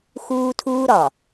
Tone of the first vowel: high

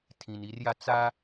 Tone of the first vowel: low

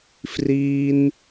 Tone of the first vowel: high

